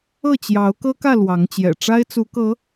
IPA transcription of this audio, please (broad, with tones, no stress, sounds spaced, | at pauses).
ɤ˥˨ t͡ɕ j ɑ˨˦ ʊ̯ k ɤ˦ k ä˥˨ l w ɑ˨˦ ŋ t͡ɕ j ɛ̰˨˩ ʈ͡ʂ a˦ ɪ̯ t͡s u˨˦ k ɤ˨˦